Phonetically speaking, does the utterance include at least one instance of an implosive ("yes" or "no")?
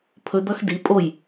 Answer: no